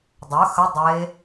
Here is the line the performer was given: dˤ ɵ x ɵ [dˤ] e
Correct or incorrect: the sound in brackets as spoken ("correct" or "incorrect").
correct